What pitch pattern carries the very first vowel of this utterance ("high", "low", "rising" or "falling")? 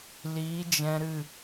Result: rising